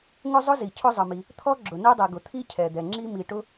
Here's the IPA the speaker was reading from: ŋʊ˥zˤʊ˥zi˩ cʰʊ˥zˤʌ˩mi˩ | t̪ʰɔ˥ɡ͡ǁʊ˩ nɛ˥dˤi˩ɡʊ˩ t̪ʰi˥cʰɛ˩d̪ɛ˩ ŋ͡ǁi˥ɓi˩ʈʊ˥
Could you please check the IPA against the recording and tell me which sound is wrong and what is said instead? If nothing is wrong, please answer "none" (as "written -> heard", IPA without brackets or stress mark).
ɓ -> m